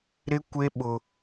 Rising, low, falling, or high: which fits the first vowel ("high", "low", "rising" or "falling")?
high